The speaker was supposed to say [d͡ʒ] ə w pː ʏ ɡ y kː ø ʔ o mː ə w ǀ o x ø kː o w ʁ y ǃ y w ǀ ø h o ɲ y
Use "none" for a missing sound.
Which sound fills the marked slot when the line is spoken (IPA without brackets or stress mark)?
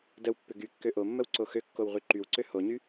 d